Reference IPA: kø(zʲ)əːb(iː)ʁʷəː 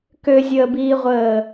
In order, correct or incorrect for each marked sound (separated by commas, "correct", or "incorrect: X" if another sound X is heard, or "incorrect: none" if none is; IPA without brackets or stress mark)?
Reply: correct, correct